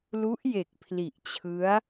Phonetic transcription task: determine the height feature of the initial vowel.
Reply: high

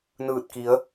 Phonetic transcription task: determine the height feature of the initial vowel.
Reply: high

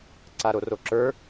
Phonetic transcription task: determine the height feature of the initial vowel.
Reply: low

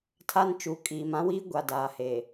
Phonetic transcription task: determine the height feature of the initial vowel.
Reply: low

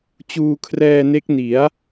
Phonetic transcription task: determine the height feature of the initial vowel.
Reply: high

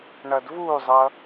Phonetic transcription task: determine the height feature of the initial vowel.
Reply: mid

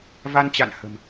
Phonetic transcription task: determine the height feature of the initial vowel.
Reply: low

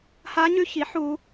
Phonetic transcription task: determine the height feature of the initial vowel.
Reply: low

